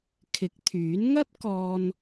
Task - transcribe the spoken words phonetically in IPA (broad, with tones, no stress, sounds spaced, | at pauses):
kʰ ɪ˨˥ k̚ t̪ʰ yː˨˥ n ŋ ɐ˥ t̚ k ɔː˧ n